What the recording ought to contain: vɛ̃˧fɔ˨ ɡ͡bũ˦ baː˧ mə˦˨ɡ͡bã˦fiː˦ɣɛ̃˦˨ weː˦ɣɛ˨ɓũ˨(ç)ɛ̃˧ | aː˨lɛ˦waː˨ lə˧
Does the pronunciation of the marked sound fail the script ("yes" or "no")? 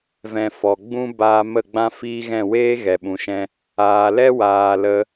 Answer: yes